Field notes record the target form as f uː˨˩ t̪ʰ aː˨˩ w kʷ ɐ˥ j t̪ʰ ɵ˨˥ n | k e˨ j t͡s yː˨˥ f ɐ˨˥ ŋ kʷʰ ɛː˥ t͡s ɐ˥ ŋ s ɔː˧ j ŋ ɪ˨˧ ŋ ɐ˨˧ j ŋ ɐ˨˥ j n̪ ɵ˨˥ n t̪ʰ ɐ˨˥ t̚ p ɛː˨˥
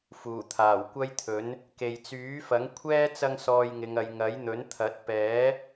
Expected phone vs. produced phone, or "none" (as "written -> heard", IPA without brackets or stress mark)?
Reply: none